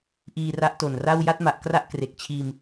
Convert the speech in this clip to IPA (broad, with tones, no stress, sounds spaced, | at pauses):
ʔ iː˧ r a˦˥ ʔ t o˨˩ n r a˥˩ w j a˥˩ t̚ m a˨˩ ʔ k r a˥˩ ʔ k r e˨˩ k̚ t͡ɕʰ iː˧ m